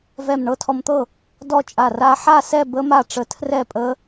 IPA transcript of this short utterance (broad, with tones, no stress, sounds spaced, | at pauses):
v ɛ˧˩ m ɳ ɤ˦˥ tʰ ɔ˧ m t̪ ɤ˥˩ | d ɔ˥˧ t͡ʃʼ a˧˩ r a˦˥ ħ a˥˧ s ɛ˥˧ b ə˦˥ m a˥˩ ʈ͡ʂ ə˧ tʰ r ɛ˥˩ pʼ ə˦˥